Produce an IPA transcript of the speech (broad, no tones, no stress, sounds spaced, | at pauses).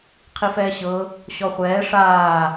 qʰ i f ɛː ɕ ɤ | ɕ ɔ χʷ ɛː ʂ aː